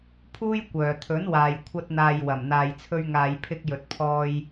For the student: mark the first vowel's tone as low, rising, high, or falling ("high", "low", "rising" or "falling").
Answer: high